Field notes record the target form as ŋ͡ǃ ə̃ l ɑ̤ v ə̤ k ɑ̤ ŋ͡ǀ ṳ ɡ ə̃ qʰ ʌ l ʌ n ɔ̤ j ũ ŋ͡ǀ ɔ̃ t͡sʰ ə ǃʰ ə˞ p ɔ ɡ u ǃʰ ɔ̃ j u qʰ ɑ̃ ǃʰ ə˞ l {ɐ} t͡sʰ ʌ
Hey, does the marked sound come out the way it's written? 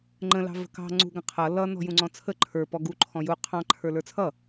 no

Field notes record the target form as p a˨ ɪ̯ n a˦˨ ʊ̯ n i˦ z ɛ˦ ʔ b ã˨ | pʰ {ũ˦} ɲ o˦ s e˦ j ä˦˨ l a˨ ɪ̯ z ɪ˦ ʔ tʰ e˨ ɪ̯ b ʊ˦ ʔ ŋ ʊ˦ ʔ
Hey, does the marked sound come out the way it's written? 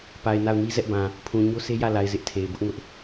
no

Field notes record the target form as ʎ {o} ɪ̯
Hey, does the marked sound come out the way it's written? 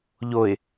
yes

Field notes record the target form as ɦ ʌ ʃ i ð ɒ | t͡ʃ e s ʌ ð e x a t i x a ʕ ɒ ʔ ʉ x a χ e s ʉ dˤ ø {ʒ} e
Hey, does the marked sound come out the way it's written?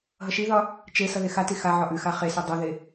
no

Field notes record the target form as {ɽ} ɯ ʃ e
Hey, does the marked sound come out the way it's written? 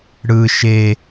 yes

